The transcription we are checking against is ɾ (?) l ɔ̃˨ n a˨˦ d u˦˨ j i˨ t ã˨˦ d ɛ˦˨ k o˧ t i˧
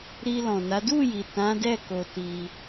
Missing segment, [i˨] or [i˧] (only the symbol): i˧